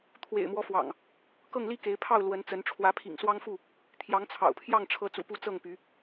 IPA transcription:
t̪ʰ w ḛ˨˩ ɪ̯ m w ɔ˦ f w ɑ̰˨˩ ŋ | k ɤ˥˨ ŋ l i˥˨ k e˨˦ ɪ̯ pʰ ɑ˥˨ ʊ̯ l w ə˨˦ n t͡s ə˨˦ n ʈ͡ʂʰ w ä˨˦ pʰ ḭ˨˩ ŋ s w ɑ˦ ŋ f u˥˨ | t̪ʰ j ɑ˨˦ ŋ t͡sʰ ɑ̰˨˩ ʊ̯ pʰ j ɑ˥˨ ŋ ʈ͡ʂʰ ɤ˨˦ t͡s ṵ˨˩ p u˨˦ t͡s ɤ˥˨ ŋ p y˨˦

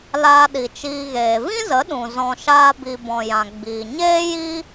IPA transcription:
l aː˧ ɗ i˨ t͡ʃ iː˧ ɣ eː˨ v ĩ˦ z ə˨˦ ɗ ũ˨ z ɔ̃˧ ʃ aː˦ b i˧ b ɔ̃˨ j ã˨ ɡ͡b iː˨ ɲ eː˦ j i˦

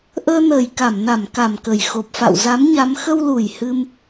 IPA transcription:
ʔ əː˧ n əː˨˩ j k a˧˩ m n a˧˩ m k a˨˩ m k ə˨˩ j x o˨˩ p̚ f a̰˧˨ w z a˨˦ m ɲ a˨˦ m x ə˧ w l u˨˩ j h ɨ˧ m

